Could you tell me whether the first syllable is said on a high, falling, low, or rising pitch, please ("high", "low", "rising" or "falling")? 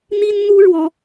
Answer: high